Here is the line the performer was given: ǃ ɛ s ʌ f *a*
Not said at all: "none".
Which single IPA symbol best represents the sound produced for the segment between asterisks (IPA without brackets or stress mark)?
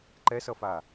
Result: a